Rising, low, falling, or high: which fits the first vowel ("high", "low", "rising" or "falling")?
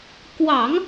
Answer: low